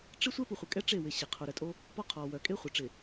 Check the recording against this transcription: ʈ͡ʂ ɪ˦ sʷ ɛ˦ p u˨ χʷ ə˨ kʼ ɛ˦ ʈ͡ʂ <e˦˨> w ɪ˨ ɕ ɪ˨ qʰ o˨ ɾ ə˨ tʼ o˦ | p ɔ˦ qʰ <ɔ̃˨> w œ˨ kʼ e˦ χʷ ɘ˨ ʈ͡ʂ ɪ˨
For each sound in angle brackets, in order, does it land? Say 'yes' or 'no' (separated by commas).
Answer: yes, no